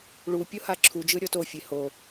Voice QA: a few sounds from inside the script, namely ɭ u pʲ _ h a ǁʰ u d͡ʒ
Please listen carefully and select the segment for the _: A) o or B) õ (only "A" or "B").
A